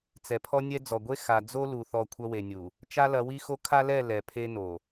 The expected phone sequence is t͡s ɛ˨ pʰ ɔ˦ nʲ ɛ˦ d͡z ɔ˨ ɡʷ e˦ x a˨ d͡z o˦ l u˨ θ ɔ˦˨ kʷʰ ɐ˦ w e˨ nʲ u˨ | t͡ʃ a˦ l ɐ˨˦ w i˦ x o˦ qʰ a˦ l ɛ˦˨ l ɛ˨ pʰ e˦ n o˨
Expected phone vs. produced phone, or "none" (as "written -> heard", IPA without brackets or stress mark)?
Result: qʰ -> kʰ